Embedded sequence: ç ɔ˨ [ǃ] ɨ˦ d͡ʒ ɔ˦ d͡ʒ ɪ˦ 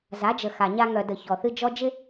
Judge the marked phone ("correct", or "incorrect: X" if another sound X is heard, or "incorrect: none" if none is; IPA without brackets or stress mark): incorrect: θ